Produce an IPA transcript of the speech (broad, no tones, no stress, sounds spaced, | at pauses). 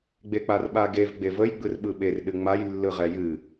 ɡ͡b e k͡p a r ɓ a ɡ e v ɡ͡b e v ə j ɡ͡b ɯ r ɓ ɯ ɓ e r ɗ ɨ ŋ͡m a j lː ɯ ʁ ɛ j ɨ